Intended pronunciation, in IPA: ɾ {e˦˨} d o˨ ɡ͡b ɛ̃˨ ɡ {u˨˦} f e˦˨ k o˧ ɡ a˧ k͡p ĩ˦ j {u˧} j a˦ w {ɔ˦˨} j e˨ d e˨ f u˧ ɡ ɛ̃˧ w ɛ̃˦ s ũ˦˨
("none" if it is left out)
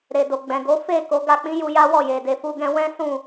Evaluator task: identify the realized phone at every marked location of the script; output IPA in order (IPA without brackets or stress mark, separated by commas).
e˨, o˨˦, u˧, ɔ˦˨